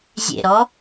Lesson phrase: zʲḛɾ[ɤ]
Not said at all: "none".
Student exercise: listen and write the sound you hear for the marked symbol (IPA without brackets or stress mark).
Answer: ɔ